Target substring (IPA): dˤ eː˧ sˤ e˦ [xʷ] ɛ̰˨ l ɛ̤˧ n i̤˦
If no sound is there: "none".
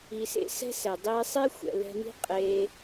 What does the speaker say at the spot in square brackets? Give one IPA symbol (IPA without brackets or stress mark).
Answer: xʷ